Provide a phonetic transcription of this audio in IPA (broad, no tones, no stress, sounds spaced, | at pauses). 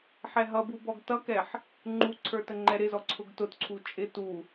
ħ ɛ ɦ ʌ b u b ɔ ɡ t ʌ k ɛ ħ | ŋ͡ǃ u ǀʰ ə˞ t ə ŋ͡ǃ ɛ ɾ ɪ z ɔ ǀʰ ʊ ɡ t ʊ t ǀʰ u t͡ʃʼ ɪ t u